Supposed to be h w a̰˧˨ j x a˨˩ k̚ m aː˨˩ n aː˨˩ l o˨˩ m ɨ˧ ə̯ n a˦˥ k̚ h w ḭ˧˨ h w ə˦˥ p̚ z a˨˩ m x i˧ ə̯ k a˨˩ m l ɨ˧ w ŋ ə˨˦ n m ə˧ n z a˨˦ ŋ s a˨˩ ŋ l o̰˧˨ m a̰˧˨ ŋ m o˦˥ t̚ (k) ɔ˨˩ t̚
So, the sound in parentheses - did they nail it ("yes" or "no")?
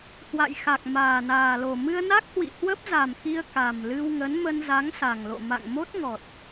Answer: no